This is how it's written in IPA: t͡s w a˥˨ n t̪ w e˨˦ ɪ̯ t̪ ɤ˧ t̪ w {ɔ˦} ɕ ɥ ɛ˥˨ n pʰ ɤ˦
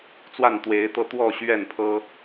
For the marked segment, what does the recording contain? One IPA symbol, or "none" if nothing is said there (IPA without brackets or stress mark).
ɔ˥˨